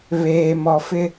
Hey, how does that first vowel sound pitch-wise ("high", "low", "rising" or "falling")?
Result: low